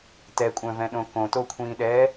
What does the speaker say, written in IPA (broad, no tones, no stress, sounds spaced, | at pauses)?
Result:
t ɛ kʷʼ œ̃ v ɛ̃ ɗ õ k õ t o kʷʰ ĩː ɗ ɛː